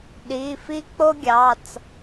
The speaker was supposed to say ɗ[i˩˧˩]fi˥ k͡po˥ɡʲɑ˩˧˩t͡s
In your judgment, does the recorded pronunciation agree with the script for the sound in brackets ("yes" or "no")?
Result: yes